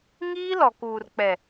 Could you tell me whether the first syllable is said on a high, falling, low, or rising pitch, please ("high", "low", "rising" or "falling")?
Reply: high